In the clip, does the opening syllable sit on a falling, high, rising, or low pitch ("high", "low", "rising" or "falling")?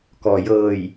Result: low